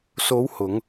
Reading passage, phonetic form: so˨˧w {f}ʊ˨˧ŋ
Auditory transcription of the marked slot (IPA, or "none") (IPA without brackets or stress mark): h